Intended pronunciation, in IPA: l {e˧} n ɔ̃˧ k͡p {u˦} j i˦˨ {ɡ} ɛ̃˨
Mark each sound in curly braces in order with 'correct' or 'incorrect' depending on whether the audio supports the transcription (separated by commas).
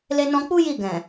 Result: correct, correct, correct